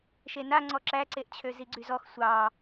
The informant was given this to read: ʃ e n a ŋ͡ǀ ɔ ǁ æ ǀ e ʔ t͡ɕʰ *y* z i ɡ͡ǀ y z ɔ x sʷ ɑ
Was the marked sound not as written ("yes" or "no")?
yes